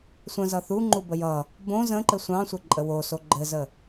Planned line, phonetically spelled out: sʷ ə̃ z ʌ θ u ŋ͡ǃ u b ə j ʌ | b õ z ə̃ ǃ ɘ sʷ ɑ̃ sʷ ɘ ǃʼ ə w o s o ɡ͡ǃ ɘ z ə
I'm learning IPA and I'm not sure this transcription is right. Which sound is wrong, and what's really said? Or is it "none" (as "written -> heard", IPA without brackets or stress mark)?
none